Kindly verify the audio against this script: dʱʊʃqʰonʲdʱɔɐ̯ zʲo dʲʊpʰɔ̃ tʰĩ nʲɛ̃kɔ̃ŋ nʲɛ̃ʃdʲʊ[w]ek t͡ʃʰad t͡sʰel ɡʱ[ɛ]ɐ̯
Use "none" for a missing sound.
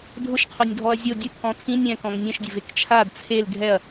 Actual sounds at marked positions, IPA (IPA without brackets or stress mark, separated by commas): v, ɛ